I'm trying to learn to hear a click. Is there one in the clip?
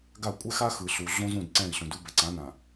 yes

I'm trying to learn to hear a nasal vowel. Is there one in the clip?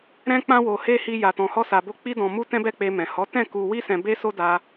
yes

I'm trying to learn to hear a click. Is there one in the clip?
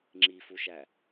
yes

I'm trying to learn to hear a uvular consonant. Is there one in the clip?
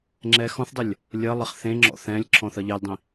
yes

